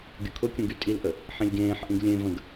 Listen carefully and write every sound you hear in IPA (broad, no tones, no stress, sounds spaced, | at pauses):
ɡʲ ʊ kʰ ʊ kʲ ũ ɡ y tʼ i l ʔ ə | ħ ĩ lʲ ɡ ẽː ħ ʔ ĩ ɡ lʲ ẽ v ə̃ ɡ